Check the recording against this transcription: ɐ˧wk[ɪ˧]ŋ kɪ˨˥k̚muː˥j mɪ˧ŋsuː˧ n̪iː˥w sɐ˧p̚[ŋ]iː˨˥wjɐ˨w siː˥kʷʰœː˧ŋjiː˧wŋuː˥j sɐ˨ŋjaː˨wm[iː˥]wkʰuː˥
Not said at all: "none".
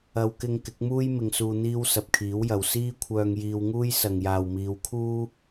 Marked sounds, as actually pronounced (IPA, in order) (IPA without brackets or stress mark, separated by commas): ɪ˧, kʰ, iː˨˧